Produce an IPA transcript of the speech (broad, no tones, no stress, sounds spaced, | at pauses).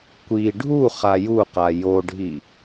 kʷ i ɖʱ u χ a j u q a j o ɖʱ i